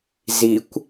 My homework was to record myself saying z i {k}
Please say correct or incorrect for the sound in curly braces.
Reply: incorrect